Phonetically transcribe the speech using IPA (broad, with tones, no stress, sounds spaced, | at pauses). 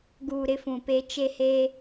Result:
ɡ uː˨ ɾ ɪ˦ f ũ˨ p e˦ t͡ʃ e˦ h e˦